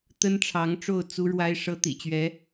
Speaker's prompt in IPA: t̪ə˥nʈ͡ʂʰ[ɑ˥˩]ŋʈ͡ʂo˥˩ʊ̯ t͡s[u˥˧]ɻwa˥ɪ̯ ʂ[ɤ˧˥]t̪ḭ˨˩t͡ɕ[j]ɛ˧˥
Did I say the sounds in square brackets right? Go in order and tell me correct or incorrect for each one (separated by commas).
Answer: incorrect, incorrect, incorrect, incorrect